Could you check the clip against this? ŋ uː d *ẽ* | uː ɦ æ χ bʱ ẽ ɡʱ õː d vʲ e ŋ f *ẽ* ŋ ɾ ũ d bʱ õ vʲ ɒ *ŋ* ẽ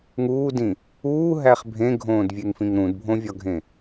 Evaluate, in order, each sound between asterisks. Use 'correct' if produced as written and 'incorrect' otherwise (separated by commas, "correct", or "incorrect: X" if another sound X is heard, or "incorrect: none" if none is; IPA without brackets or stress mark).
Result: incorrect: ĩ, incorrect: ĩ, incorrect: ɡʱ